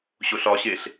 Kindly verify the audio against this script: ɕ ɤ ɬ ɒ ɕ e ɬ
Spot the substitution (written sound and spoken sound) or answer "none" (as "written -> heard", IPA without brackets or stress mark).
ɤ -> o